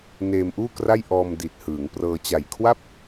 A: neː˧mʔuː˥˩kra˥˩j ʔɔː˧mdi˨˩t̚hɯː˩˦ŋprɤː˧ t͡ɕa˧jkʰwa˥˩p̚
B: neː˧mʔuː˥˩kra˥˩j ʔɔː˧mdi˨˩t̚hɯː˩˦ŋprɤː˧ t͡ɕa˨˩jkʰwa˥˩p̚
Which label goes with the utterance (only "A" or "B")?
B